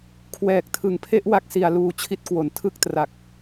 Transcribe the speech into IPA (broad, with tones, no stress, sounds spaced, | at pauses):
kʰ w ɛː˨˩ k̚ tʰ ɯ˨˩ ŋ pʰ e˥˩ ʔ w a˦˥ k̚ s i˨˩ a̯ l uː˧ t͡ɕʰ i˦˥ t̚ k w o˩˦ n tʰ ɯ˥˩ k̚ t r a˨˩ k̚